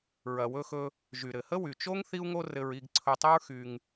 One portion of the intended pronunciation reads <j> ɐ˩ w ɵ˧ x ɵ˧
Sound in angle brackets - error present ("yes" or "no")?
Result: yes